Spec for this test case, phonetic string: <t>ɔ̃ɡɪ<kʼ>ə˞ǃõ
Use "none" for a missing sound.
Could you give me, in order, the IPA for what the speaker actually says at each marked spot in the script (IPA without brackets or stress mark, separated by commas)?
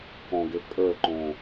k, kʼ